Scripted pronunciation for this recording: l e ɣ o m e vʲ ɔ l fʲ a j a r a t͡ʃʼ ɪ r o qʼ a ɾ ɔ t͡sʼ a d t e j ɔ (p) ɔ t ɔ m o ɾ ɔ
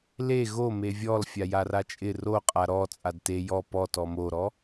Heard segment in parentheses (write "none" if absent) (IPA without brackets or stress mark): p